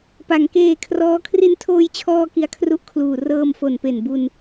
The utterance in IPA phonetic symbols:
pa˩˦ŋkeː˧kʰrɔː˦˥ kʰri˧ntʰoː˧jt͡ɕʰɔː˧ ki˧a̯kʰru˦˥ʔkʰluː˨˩ rɤː˧mfo˨˩npe˨˩n bu˧n

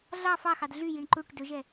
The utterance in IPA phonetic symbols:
ɮɑ fɑxɑd ɮyjiɳ ǃuʈ dɵʒɛ

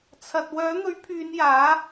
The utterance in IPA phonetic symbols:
t͡sʰɐ˨t̚ wœː˨˥n̪ɵ˨˥ɥpʰyː˨˧n jaː˨˥

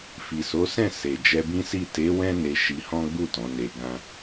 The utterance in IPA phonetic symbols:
fi˨so˨˦sɛ̃˦˨ se˨ d͡ʒɛ˧bĩ˦si˦˨ te˨˦ wɛ̃˦ne˧ ʃi˧ hɔ̃˦ɡ͡bu˦˨ tɔ̃˨˦ne˧ ɡã˧

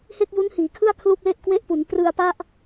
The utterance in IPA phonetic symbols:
he˥˩k̚ju˦˥nhiː˩˦kʰɯ˥˩a̯ kʰlu˥˩k̚le˥˩ʔkwe˥˩ʔpu˩˦n prɯ˧a̯pa˥˩ʔ

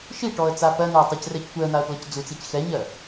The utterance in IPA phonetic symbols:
ʃiʈɔə̯ t͡sapɜnʊə̯ tˤicrɛctʷɛə̯n̪aə̯ plɔcd͡zut͡sic xɛɲɜ

